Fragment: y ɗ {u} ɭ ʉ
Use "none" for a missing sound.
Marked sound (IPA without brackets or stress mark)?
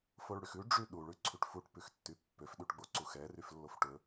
u